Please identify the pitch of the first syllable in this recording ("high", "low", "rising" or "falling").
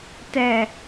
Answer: low